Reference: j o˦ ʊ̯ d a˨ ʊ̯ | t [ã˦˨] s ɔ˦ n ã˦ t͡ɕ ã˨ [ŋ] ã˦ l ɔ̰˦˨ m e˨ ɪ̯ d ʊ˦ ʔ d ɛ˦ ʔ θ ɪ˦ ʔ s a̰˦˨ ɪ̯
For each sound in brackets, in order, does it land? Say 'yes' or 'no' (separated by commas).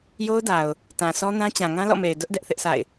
no, yes